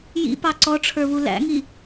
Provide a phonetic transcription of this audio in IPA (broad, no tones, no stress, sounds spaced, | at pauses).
j ḭ p ɑ ǀ ɔ ʈ͡ʂʰ ə˞ β u l æ̰ ŋ i